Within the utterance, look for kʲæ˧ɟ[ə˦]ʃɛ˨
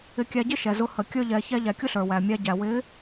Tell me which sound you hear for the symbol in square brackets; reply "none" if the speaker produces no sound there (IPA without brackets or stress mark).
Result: ɪ˦